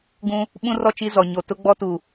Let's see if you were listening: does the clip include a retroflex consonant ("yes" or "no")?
no